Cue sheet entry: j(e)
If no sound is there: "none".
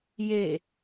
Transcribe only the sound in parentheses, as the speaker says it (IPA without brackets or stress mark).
e